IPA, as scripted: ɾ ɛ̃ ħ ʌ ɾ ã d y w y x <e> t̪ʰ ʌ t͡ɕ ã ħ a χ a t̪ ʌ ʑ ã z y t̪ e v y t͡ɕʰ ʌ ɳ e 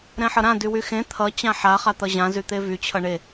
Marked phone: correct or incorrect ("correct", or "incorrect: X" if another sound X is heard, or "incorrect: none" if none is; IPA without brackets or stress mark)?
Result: incorrect: ẽ